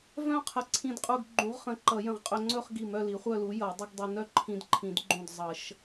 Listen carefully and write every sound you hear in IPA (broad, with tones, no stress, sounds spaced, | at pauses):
v œ̃˥˧ qʰ ə˧˩ ǀʰ ĩ˧ d qʼ u˧ ɡ ɡ͡ǃ ũ˨˥ ʁ χ ə̃˨˥ ǃ ʌ˨˩˦ j ə̃˧˩ ʁ qʼ ɵ˧ ŋ͡ǀ ɵ˥˧ χ ɡ i˧˩ m œ˥˧ l i˨˥ χʷ œ˥˧ l u˨˥ j ʌ˨˩˦ dˤ ɪ˥ ɡ dˤ ə˧ n œ˥˧ ǃʰ ĩ˧ d ǃʰ ĩ˨˩˦ d ɡ͡ǃ ũ˧˩ d zˤ ʌ˨˩˦ ʃ